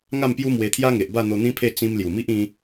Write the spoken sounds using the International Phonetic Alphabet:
ŋa˥˧mpju˦ mwe˧t̪ʰja˦ŋe˨ʔ ba˥˧n̪o˧n̪ĩ˦pʰe˥˧ t͡sĩ˧m lju˨˩mi˦ʔ ĩ˦

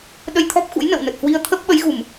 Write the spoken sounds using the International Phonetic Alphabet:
ɗə˧jt̪ʰɔ˦˥p̚xṵ˧˥j nə̰˧˨wnə˨˩t̚hwi˧ə̯ t̪ʰə˦˥p̚ɓə˨˦jɣu˧˩˨m

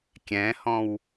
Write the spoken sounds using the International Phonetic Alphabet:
kʲɛ̃hɔ̃w

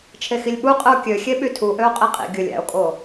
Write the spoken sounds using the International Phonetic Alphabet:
t͡ʃʰexilʲɓu qʼɯo̯kʲøxʲe ɓytʰuʔøo̯ qʼeqʼḭ ɡʲɯlʲ æ̰o̯kʼo

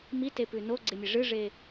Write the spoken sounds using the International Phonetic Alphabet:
mitepʉ noɡ͡ǀemʲe ʐɨʐe

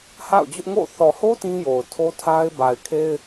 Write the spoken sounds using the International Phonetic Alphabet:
ha̰˦˨ʊ̯d͡ʑʊ˦ʔŋo̰˦˨ θɔ˨ho˦ tĩ˦jo˨ʊ̯tʰo˦tʰa˦ɪ̯ ba˨ɪ̯kʰe˦ɪ̯

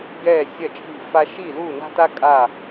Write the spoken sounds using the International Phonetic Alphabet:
ɡɛː˥˩sʲɐ˥˩t͡ʃʼi̤˥˩ fa˥ ʃi˥˩lu˥˩na̤˥ta˥ kʼa˥˩

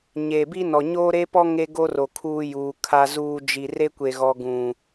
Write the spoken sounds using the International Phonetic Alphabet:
ɲe˨bi˦nɔ˨ ɲo˦ɾe˦pɔ˦ ŋe˦ɡo˦ro˨ kʰuː˦juː˨ kʰa˨zuː˨ d͡ʒi˨ re˦kʷe˨ɣɔ˨ ɡũ˨

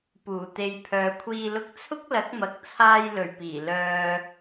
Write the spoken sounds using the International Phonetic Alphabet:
puː˨˩t̪e˨j pʰœː˨kʷʰiː˧ lʊ˧k̚t͡sʰʊ˥k̚lɐ˨˥k̚mɐ˨k̚ t͡sʰaː˧jlɵ˨˩ɥpiː˨˩ lœː˧

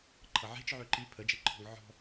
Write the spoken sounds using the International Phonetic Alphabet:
ǃʰʌʕe̤t͡ʃʕø ǃi pʰəd͡ʒeǃʰɔ̤ŋ ʕɔ̤

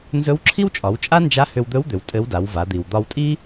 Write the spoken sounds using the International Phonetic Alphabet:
nzɵ˧˥wǁʰi˥wt͡ʃʼɒ˩˧wt͡ʃʼa˥ nd͡ʒa˧˥hʏ˧wd̪ɵ˧˥wd̪ʏ˩w tʼɘ˧˥wda˩˧wva˩˧ d̪i˩wd̪ɒ˧wtʼi˥

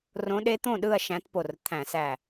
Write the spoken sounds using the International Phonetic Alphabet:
rõ˧˥ɗe˧˥t̪õ˥˧ ɗɯ˥˧ɐ̯ ʃæ̃˧˥tpo˧˩rt̪ʰæ̃˧˩˧sæ˧˩

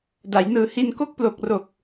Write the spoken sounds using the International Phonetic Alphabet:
da˩˦jnɯː˨˩ hi˧nko˥˩k̚plo˨˩k̚ro˨˩k̚

